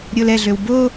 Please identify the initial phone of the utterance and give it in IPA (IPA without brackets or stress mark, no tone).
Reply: ɾʲ